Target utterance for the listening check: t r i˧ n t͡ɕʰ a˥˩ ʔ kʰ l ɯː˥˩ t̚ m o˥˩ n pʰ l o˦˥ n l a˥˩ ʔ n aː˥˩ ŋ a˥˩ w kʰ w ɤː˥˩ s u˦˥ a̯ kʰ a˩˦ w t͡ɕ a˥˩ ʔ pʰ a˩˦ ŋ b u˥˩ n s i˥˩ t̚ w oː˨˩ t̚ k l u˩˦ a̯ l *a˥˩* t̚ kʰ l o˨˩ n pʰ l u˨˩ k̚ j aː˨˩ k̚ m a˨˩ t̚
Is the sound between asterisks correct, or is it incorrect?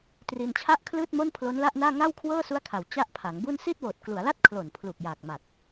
correct